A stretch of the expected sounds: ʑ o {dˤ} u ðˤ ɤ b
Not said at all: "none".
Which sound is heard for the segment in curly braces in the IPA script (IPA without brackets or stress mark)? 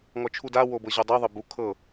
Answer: dˤ